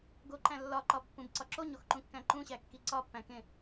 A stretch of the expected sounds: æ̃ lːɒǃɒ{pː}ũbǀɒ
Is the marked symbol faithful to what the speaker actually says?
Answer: yes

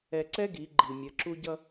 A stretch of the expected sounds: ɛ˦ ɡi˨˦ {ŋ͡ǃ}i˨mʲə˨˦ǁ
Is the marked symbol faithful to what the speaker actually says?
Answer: no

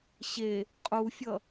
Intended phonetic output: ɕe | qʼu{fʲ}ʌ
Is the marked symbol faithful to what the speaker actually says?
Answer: yes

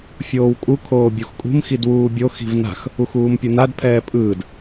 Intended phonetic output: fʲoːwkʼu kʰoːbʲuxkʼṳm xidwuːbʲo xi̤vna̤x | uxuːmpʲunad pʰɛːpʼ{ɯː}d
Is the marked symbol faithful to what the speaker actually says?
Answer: yes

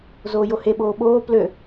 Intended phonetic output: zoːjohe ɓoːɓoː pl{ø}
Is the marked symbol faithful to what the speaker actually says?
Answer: yes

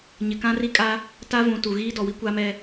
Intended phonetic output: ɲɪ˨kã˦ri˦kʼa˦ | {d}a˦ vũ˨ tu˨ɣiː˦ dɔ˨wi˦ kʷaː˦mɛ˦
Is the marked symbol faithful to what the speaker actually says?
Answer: no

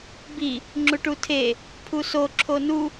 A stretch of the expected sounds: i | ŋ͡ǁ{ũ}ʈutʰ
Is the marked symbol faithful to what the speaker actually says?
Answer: no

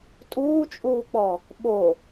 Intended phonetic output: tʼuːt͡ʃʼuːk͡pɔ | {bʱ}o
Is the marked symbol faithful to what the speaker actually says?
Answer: no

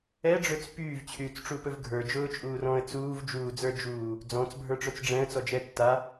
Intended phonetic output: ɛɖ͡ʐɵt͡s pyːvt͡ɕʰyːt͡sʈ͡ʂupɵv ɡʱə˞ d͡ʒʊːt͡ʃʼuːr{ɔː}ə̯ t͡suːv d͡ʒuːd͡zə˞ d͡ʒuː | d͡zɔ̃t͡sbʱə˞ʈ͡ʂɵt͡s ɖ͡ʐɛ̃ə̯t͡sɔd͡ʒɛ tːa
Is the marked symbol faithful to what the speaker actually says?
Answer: no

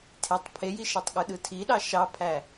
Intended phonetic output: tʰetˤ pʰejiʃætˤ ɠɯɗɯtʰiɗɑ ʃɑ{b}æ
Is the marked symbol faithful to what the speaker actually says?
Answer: no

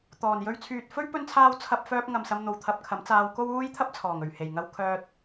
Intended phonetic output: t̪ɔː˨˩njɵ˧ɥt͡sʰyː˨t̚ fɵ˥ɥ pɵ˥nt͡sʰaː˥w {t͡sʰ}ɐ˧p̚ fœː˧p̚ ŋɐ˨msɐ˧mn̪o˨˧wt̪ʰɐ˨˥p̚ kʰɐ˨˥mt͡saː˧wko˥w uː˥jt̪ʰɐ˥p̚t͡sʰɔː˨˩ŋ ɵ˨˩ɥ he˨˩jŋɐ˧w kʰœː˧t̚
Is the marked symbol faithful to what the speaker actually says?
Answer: yes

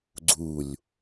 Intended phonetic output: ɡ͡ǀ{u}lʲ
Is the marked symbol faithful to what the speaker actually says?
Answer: yes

